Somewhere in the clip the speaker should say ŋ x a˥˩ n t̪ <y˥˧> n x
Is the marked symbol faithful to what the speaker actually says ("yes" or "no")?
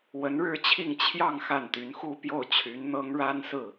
no